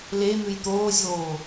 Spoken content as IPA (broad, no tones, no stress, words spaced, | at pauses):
le n̪ʉjt̪oːzʲoː